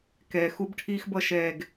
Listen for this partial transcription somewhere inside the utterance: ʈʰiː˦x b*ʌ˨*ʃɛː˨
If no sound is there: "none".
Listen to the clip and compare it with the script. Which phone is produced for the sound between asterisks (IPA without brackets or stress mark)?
ʌ˧